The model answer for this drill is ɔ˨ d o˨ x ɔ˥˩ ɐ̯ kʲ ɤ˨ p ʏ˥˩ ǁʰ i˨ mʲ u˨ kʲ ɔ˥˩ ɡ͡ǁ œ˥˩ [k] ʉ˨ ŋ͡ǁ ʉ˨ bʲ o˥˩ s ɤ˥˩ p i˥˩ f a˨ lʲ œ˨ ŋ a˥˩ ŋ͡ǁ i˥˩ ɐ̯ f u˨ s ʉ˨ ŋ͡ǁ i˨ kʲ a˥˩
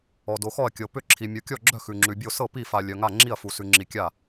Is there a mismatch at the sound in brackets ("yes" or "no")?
yes